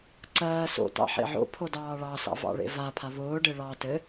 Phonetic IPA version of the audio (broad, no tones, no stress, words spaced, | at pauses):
ǀɜː so̰tɑ̰ħḛ ʕo̰pʰodɑː ɭɑsɑ̰vɑ̰ɭḛ vapʰa βʊːɖe ɭɑ tɘ